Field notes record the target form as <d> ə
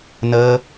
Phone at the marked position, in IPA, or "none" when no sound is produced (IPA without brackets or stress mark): n